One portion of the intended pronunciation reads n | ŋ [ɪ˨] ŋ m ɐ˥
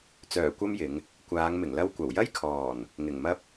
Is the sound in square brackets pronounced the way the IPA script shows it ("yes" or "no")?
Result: no